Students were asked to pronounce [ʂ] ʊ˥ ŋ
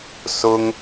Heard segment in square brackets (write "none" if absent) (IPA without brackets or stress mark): s